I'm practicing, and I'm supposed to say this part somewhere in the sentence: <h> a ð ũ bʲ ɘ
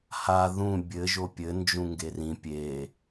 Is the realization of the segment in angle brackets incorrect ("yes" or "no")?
no